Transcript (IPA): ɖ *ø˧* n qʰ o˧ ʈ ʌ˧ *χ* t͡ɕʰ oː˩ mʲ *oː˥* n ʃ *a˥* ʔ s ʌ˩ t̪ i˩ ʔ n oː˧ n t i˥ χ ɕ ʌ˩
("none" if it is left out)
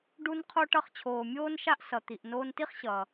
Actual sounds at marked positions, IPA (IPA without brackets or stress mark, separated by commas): u˧, χ, oː˥, a˥